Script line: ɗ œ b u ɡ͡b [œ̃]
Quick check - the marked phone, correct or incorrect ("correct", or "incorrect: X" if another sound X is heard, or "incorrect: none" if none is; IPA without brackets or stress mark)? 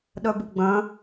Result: correct